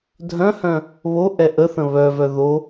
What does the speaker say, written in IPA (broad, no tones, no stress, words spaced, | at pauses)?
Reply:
dʱœ̃hœ̃ | βo ʔɛʔəθə̃ βœvœ ðo